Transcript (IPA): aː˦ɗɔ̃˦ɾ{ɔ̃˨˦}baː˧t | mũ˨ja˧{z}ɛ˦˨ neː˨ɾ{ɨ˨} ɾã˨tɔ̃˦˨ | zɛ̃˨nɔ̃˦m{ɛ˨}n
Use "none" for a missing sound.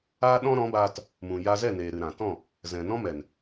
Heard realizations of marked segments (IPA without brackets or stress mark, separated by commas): ɔ̃˨˦, z, ɨ˨, ɛ˨